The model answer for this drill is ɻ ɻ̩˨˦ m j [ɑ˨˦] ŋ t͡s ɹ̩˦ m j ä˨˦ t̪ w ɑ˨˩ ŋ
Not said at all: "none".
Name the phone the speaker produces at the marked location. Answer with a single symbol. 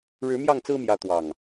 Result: ɑ˥˨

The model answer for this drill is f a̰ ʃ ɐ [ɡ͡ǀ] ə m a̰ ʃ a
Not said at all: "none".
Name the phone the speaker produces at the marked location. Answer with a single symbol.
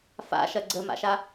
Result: ɡ͡ǀ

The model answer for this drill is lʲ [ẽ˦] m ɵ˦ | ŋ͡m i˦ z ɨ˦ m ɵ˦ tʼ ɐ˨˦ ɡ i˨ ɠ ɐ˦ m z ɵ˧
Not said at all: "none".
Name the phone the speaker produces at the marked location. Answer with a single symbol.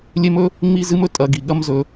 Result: e˦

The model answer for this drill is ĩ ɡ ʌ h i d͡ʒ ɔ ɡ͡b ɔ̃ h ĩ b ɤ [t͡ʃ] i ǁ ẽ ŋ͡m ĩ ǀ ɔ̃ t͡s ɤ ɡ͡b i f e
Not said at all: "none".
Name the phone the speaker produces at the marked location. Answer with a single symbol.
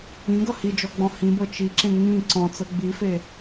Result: t͡ʃ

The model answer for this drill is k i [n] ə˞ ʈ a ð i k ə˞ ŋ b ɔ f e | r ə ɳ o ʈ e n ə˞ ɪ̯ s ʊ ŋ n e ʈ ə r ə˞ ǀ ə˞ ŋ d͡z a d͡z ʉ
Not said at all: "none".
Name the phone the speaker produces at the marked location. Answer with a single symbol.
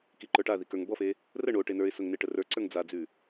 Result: ǃ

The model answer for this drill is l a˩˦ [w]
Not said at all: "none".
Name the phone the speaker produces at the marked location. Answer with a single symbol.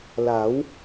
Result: w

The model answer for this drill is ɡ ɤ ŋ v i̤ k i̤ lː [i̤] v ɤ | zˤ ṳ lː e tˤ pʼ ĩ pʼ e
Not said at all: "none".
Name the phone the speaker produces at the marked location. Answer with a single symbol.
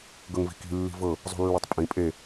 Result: i̤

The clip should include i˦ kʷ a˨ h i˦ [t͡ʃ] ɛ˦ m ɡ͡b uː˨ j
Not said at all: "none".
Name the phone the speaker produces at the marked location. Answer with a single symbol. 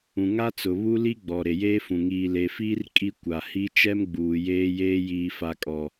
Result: t͡ʃ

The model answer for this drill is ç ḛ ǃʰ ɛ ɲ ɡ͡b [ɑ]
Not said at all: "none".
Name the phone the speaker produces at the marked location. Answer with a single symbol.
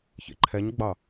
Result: ɑ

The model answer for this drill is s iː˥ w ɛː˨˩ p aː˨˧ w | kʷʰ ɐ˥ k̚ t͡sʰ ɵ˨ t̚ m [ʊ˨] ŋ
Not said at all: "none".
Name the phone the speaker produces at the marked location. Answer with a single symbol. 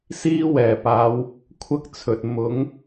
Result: ʊ˨˥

